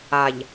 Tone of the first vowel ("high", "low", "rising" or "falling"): low